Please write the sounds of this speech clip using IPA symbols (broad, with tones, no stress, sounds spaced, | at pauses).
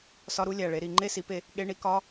s ɒ˧˥˧ ɾ u˧˥˧ lʲ æ˨˩ ɭ e˨˦ ɾ i˧˩˧ ŋ͡ǃ e˥˨ s i˨˦ p e˨˦ | ɠ e˧˥˧ ɳ i˦˥ k ɒ˧˥˧